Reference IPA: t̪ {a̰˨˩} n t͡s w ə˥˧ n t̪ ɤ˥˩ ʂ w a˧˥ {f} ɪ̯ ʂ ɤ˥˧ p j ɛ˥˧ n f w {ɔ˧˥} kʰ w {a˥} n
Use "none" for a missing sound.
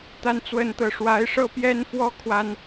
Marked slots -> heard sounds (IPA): a˥˧, none, ɔ˥˩, a˥

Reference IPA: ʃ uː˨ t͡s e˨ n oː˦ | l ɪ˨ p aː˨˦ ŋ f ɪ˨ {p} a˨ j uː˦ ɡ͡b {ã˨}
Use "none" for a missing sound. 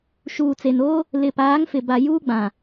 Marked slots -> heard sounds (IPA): b, ã˨

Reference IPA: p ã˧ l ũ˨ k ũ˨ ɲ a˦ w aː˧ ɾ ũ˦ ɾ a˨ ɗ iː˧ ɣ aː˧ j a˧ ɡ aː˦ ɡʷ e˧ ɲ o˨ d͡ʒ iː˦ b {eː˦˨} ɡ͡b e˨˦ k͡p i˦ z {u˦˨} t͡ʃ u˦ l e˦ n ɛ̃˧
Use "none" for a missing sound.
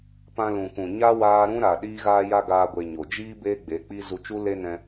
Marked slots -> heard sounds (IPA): eː˦, u˧

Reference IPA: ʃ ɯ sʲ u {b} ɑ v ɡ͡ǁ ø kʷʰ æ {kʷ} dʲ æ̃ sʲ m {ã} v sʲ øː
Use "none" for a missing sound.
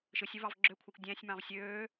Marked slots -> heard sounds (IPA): v, kʷ, ɑ̃

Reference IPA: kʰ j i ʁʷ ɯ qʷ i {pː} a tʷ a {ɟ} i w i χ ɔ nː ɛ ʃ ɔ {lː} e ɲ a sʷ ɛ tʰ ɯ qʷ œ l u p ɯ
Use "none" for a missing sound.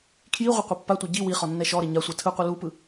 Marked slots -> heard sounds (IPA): pː, ɟ, ɾ

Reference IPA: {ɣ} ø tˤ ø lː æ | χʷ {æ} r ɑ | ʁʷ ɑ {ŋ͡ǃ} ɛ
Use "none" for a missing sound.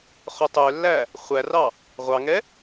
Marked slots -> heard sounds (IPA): χ, æ, ŋ

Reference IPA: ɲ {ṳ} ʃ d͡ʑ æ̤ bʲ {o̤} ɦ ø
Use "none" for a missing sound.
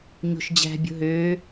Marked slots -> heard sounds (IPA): o̤, o̤

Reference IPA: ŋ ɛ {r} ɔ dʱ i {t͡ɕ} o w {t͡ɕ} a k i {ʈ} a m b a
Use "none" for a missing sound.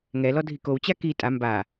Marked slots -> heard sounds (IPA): l, k, t͡ɕ, tʼ

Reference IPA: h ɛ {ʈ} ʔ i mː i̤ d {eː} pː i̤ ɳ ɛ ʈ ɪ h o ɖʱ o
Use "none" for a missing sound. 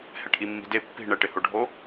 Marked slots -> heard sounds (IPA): ʈ, e

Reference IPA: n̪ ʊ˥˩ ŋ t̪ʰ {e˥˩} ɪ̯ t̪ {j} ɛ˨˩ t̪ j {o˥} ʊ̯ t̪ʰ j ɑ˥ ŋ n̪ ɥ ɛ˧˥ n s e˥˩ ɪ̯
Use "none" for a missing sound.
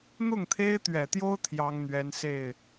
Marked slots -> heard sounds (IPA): e˥, ɥ, o˥

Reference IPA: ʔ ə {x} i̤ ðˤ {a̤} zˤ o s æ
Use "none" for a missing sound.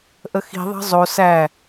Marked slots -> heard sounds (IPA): x, ɑ̤

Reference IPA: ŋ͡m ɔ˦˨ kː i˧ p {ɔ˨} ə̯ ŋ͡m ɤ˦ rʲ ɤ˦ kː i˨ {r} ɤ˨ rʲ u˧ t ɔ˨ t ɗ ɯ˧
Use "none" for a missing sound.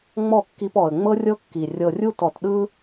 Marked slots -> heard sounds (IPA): ɔ˨, rʲ

